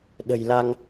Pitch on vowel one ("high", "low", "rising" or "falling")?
low